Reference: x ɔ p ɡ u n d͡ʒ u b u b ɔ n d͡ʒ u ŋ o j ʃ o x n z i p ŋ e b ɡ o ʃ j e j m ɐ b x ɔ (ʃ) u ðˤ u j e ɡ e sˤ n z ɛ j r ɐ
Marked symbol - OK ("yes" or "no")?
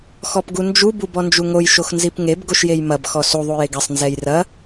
no